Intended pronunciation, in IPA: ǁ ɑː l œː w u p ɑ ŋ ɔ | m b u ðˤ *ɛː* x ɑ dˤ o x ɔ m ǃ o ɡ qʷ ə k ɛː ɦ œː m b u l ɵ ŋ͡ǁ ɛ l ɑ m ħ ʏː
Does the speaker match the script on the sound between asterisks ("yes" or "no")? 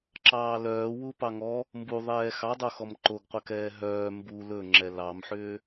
yes